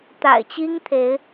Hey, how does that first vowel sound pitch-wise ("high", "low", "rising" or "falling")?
low